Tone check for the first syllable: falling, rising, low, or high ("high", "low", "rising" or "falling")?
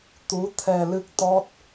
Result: rising